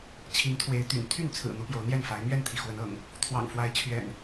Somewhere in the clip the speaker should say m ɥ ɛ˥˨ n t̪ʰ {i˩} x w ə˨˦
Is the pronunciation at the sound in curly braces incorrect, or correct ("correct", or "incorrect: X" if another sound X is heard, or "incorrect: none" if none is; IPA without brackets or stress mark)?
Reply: correct